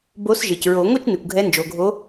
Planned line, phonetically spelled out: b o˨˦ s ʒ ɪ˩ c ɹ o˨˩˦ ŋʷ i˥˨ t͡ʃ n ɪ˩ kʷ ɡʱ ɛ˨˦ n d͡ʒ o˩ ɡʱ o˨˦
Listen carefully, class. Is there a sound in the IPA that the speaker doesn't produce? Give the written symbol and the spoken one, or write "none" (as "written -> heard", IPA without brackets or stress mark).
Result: none